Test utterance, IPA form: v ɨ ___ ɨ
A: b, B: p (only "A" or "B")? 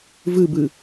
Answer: A